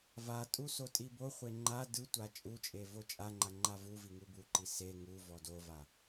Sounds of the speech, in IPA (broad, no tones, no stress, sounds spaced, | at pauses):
v a tʼ u s o tʼ i b o χʷ e ŋ͡ǃ a d ɯ tʷ a t͡ʃʼ u t͡ʃʼ e v o t͡ʃʼ a ŋ͡ǃ a ŋ͡ǃ a v u v i ŋ u b u ǃ i s e ŋ u v ɔ d o v a